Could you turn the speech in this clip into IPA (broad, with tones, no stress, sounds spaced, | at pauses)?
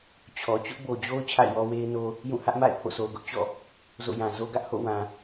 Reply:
t͡ɕʰ ɔ˨ t͡ɕ ʊ˦ ʔ b o˨ d͡ʑ o˦ ʊ̯ t͡ɕʰ a̰˦˨ ɪ̯ w ɔ˦ w e˦ ɪ̯ n o˦ | j ũ˦˨ h ä˦ ʔ m a̰˦˨ ɪ̯ pʰ o̰˦˨ s o˨ ʊ̯ ɡ ʊ˦ ʔ t͡ɕ ɔ̰˦˨ | z o̰˦˨ j ã˨ z o˦ ɡ ä˦ ʔ h o̰˦˨ w ã˨